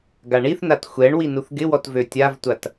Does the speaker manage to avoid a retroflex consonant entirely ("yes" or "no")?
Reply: no